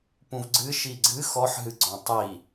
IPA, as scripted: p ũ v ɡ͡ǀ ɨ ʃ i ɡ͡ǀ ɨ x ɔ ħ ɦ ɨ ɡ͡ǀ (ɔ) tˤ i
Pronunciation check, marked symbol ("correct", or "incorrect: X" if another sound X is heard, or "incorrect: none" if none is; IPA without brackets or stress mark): incorrect: ɔ̃